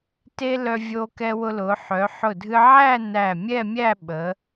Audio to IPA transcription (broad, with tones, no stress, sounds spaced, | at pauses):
t e˥ l œ˧ vʲ o˧ k ɛ˧ w ʊ˧ l ʊ˩˧ ħ œ˩˧ ħ ʊ˧˩ dʱ ɨ˧ ʕ æ˥˧ n æ˧˩ mʲ ɛ˥˧ mʲ æ˥˧ ɓ ə˩˧